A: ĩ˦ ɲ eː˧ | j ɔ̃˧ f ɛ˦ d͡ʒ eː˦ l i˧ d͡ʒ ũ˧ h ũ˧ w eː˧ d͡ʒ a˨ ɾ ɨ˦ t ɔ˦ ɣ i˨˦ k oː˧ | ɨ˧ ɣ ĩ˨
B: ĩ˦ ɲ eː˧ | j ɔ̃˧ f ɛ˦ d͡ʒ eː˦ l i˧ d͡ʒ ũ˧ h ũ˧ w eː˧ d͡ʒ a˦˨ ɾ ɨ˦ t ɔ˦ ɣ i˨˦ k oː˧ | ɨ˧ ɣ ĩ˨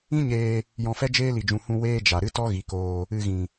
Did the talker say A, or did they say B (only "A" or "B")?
A